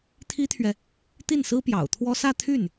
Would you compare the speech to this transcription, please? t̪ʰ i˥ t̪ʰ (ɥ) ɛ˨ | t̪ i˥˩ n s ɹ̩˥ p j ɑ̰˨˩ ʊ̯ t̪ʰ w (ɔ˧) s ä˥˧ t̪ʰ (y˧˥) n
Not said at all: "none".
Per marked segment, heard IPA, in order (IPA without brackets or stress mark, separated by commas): ɥ, ɔ˥, y˥˩